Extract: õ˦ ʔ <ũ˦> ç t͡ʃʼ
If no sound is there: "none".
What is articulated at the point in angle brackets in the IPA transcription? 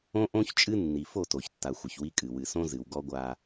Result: õ˦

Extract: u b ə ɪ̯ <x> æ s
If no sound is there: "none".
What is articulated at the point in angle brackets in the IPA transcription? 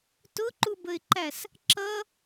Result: ǃ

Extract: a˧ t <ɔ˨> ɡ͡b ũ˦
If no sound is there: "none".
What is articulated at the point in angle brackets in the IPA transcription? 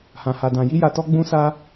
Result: ɔ˦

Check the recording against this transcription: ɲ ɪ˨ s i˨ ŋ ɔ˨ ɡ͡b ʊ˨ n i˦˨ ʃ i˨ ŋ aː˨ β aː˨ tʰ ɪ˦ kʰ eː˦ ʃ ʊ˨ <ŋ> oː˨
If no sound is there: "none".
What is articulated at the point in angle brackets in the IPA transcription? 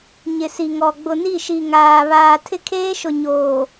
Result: ɲ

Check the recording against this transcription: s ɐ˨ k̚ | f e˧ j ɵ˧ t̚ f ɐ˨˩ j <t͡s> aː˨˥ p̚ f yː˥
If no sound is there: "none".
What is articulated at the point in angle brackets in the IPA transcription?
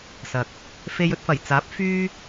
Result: t͡s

